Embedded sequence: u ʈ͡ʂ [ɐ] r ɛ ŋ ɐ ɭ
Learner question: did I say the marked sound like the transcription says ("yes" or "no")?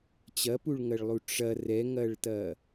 yes